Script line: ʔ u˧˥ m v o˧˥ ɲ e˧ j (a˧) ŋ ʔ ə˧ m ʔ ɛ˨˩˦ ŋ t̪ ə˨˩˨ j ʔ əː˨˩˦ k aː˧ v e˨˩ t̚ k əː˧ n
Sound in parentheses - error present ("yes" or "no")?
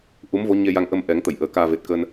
no